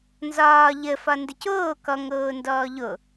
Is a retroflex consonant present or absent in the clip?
absent